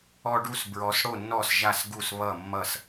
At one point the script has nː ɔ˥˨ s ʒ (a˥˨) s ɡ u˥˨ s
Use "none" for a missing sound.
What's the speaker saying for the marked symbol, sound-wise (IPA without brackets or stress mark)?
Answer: a˥˨